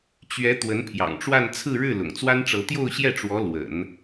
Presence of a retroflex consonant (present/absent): present